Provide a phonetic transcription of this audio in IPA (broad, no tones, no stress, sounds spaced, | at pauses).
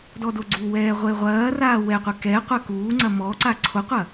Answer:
d ɔ d o ɡ͡ǀ u w ɛː ʁʷ e ʁʷ ɐː r aː w ɛ qʷ ɛ k ɛ qʷ ɐ k uː ŋ͡ǀ ɐ m ɔ ǀ a ǀʰ o qʷ ɐ